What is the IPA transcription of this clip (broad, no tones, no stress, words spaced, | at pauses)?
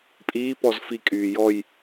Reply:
pʼiːpɔz fikʼyː jɔj